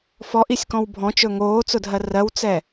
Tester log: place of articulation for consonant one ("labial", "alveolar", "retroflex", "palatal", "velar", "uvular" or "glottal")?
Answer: labial